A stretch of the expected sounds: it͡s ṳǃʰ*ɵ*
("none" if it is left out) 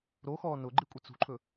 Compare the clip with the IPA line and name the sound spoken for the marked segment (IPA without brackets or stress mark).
ɵ